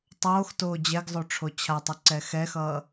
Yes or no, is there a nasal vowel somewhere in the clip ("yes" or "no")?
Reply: no